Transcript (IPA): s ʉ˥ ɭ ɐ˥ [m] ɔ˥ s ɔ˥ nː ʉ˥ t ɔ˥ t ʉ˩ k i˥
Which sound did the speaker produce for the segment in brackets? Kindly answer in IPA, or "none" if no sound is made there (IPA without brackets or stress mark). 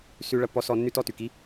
pː